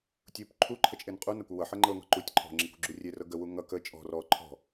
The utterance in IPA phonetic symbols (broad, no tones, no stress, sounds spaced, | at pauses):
tʲ u p ǃʰ u ǃʰ ə t͡ʃʼ e n qʼ u n ʌ kʷ ʌ w ʌ ħ ɤ ŋ͡ǃ ɤ ŋ ɔ̤ ǃ u tʲ ǃʰ ɔ̤ ŋ͡ǁ e kʷ ṳ ɡ͡ǁ u rʲ e r ɤ ɡ ə w u ŋ ʌ k ə t͡ʃʼ ɔ̤ r ɔ ǃʰ ɔ̤